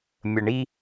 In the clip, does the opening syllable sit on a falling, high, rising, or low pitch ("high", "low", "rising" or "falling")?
low